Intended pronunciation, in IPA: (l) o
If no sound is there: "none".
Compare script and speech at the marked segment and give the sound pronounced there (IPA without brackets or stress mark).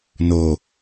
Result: n